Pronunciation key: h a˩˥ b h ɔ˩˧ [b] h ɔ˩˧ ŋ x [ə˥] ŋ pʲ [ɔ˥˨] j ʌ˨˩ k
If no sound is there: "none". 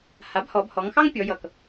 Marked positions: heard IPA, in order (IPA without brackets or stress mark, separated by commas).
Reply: b, ɑ˥, ɔ˩˧